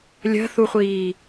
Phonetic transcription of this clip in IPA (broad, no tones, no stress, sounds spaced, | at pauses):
lʲ ə̤ θ u χʷ iː